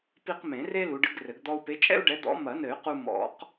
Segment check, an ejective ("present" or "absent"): present